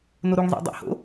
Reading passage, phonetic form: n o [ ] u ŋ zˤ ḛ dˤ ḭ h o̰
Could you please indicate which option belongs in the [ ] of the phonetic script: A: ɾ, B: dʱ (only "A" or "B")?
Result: A